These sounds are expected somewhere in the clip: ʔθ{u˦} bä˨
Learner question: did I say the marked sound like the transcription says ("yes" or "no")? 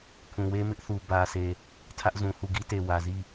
no